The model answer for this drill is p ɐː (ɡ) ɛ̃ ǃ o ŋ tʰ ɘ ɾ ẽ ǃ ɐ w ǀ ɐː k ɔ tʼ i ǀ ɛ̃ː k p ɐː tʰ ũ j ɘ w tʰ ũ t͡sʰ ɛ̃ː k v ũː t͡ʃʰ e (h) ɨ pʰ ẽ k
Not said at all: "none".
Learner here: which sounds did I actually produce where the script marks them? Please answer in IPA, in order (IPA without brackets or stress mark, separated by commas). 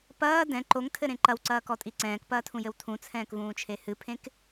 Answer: d, h